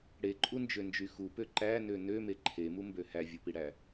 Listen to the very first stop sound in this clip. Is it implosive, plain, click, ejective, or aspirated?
click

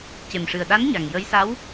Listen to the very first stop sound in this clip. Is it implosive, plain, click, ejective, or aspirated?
plain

